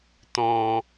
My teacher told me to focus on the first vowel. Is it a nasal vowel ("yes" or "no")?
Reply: yes